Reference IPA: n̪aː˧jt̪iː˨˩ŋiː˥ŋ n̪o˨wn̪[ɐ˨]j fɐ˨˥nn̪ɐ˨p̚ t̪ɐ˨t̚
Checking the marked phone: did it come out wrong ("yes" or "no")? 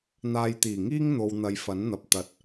no